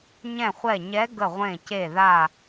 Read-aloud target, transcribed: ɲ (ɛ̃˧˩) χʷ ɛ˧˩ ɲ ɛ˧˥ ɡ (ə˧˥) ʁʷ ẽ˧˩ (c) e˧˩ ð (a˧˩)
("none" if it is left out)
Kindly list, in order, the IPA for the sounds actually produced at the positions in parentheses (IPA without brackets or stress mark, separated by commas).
ɛ̃˧˩, ə˧˩, c, a˧˩